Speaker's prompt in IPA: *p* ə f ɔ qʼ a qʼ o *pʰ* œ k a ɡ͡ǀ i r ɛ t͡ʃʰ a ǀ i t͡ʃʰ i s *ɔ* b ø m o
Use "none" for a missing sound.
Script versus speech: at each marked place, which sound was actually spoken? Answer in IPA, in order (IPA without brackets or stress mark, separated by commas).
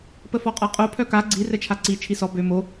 p, pʰ, ɔ